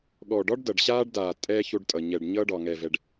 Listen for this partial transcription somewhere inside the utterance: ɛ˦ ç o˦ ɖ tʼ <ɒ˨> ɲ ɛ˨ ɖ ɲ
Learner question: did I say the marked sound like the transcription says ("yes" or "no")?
no